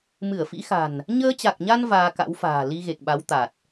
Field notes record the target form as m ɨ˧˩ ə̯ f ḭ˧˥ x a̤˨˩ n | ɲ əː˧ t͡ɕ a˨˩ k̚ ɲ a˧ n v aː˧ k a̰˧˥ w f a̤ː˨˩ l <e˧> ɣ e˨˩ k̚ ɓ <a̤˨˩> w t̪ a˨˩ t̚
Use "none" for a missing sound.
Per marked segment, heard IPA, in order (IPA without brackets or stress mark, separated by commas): i˧, a˨˦